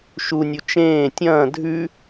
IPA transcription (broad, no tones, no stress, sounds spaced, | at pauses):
ʃ u nʲ u t͡ʃ ẽː tʲ ɐ̃ː dʱ ʉ